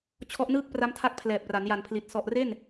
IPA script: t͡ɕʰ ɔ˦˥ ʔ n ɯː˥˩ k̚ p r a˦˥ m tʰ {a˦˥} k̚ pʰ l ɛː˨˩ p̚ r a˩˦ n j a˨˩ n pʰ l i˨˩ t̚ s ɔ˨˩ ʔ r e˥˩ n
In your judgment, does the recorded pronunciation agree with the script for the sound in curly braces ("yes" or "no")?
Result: yes